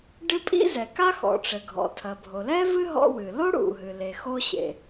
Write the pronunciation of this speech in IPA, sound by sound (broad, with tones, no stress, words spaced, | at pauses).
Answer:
ɖɨ˥pʼḭ˥zɛ˩ ka˥xɔ̰˩ʈ͡ʂɘ˩ ɡʱɔ̰˩tʰɐ˩ bʱo˩lɛ˥vɨ˥ ɦɔ̰˥wɨ˩ lo˥ɽṵ˩ɦɨ˩le˩ xo˥ɕḛ˩